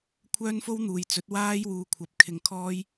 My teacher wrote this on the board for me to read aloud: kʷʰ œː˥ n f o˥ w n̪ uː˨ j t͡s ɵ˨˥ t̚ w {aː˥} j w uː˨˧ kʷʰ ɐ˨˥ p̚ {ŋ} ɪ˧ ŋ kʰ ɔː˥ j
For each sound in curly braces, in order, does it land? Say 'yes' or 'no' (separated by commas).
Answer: yes, no